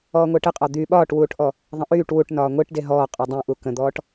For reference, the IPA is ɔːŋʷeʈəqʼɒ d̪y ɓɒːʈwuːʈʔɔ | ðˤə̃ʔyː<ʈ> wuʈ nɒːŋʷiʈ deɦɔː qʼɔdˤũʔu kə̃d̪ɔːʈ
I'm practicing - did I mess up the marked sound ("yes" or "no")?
no